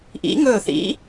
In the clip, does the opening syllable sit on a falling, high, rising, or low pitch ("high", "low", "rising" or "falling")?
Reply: rising